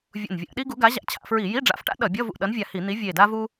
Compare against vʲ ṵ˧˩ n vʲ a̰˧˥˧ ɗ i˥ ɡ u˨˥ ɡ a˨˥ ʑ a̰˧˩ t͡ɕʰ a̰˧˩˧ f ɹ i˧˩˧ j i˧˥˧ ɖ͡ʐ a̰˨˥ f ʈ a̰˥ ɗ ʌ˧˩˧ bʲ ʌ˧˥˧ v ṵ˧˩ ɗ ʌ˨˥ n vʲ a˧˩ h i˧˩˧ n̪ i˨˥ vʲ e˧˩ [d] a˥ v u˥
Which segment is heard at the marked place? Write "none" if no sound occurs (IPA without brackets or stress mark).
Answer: d